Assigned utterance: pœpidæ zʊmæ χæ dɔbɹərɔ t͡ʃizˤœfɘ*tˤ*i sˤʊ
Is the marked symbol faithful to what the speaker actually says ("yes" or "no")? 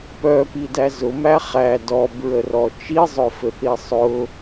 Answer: no